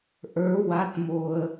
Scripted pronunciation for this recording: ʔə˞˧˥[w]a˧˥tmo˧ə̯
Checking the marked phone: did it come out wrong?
no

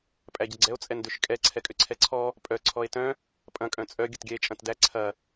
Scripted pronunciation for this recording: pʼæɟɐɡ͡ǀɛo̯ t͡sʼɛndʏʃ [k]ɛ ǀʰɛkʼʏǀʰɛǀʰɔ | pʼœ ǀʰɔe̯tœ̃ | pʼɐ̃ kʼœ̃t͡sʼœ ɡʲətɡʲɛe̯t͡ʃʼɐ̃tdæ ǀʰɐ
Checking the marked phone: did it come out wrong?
yes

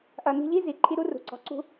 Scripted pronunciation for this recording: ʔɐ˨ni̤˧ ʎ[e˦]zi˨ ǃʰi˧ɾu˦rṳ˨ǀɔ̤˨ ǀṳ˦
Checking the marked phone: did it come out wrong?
yes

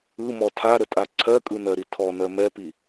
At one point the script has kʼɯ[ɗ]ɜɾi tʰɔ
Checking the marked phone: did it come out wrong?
yes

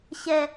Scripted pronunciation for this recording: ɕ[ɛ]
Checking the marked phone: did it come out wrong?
no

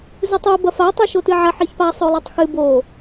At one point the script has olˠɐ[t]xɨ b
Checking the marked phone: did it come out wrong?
yes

